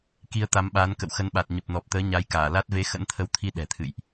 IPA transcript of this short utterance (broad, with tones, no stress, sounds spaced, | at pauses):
k i˨˦ ə̯ t̪ a˨˦ m ɓ aː˨˦ n k ə̰˧˨ w x ə˨˦ n ɓ a˨˩ t̚ ɲ ə˨˩ p̚ n ɔ˨˩ p̚ t̪ əː˨˦ ɲ a˨˦ j k aː˧˩ l a˦˥ t̚ v e˨˦ x ə̰˧˥ n t̪ʰ ə˨˦ w t̪ʰ i˧ ɗ ɛ̤˨˩ t̪ʰ ɨ̰˧˨ j ʔ